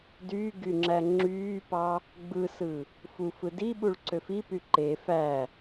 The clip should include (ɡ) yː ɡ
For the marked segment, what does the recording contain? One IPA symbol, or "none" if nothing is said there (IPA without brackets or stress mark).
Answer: d